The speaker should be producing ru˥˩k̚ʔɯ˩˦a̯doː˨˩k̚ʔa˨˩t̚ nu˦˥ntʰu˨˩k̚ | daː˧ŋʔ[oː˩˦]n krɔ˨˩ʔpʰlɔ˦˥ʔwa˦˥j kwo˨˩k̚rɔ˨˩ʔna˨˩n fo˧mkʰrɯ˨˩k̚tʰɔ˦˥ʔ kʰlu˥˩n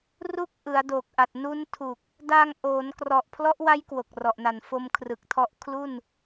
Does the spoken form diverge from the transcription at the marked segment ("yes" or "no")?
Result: no